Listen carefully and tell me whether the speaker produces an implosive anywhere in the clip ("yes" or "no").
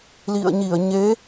no